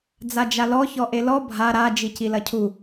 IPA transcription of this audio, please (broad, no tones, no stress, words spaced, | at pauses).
d͡zad͡ʒalɔ çɔʔelɔ bʱa ɾa d͡ʒicilɐcʰu